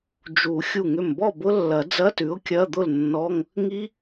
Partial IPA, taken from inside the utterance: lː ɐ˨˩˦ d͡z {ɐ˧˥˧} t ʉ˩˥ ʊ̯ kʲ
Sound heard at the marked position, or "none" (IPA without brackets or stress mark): ɐ˧˥˧